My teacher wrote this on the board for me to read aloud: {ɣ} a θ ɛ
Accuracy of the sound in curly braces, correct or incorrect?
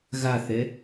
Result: correct